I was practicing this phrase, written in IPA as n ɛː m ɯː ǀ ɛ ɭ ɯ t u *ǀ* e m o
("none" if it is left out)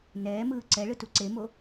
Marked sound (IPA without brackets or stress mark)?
ǀ